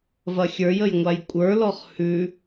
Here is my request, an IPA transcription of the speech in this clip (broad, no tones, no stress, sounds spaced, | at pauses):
v ɐ xʲ ə˞ j ə j ŋʷ a j kʷʼ ə˞ l ɔ χ h ʉ